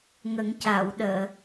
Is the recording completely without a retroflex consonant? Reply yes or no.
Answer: yes